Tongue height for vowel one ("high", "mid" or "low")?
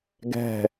mid